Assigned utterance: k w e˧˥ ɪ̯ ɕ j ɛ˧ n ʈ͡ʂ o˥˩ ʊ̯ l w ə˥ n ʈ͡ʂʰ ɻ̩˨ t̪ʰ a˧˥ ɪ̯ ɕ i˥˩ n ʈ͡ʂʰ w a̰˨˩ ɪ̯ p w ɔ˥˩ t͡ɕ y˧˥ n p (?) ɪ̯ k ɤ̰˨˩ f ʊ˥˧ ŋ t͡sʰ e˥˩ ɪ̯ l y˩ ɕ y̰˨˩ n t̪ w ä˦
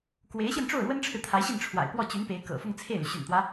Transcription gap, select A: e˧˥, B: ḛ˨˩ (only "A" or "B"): A